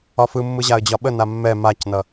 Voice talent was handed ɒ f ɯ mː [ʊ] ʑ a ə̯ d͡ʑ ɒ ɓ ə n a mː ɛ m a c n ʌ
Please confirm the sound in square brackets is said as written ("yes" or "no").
no